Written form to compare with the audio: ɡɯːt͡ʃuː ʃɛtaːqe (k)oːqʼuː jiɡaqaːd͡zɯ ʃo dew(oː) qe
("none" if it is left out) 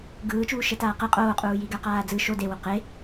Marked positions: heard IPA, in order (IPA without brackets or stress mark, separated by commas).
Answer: qʼ, o